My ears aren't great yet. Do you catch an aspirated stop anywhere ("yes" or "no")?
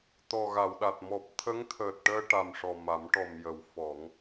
yes